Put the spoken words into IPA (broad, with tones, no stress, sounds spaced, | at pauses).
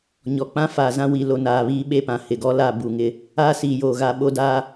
ɲ ɔ˨ k͡p ã˦ f aː˨ z ã˦ w i˨ l o˨ n aː˨ β iː˦ ɓ e˦ p ã˨ h ɪ˨ ɡ ɔ˦ l a˦˨ b u˨ ŋ ɪ˦ | aː˦ s iː˨ j oː˨ ɣ a˦˨ ɓ o˦ d aː˦